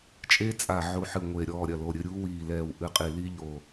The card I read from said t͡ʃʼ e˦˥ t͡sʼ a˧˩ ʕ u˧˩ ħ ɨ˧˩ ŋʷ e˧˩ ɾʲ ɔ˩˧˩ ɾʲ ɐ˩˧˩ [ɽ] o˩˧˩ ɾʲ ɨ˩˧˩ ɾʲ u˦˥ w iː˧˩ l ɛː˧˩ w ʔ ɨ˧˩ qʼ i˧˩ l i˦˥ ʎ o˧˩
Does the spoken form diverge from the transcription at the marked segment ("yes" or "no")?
yes